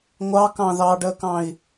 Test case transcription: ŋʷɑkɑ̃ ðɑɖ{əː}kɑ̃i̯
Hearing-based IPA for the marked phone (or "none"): əː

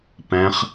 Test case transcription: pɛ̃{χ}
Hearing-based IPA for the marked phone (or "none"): χ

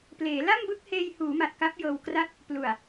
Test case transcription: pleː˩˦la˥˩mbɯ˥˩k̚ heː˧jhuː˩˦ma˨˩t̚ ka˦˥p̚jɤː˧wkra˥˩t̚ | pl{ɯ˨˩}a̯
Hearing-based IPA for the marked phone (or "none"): u˨˩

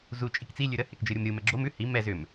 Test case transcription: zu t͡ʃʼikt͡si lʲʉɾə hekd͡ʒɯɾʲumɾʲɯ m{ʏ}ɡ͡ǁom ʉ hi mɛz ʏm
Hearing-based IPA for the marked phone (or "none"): ɛ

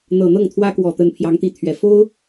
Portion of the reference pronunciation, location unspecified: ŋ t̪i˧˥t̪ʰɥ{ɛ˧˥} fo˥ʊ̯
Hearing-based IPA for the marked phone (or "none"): ɛ˨˩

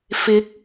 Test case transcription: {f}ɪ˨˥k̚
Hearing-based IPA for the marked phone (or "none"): f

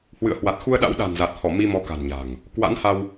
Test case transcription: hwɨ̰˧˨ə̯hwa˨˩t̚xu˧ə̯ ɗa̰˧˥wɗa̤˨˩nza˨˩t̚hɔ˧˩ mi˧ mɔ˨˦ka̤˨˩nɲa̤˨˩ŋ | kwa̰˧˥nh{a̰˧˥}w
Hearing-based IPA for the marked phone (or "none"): a˧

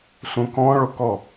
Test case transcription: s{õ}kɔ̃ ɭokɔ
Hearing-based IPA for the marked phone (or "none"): ũ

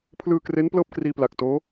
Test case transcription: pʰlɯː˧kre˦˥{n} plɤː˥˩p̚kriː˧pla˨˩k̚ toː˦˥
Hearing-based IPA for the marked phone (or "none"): n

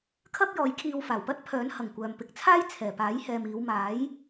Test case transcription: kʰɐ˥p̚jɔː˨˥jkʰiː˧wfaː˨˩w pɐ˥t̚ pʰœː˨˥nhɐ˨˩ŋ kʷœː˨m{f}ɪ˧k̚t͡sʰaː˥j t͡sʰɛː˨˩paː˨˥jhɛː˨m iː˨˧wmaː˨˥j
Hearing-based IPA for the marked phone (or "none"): p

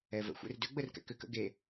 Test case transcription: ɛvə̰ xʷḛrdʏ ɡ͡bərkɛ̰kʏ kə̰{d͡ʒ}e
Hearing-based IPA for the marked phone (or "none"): ɡ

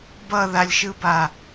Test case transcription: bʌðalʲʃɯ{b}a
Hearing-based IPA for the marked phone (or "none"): b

